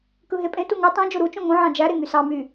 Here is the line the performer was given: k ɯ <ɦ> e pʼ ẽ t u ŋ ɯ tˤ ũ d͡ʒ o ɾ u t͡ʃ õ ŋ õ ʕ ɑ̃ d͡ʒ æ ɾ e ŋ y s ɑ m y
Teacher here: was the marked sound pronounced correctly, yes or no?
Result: yes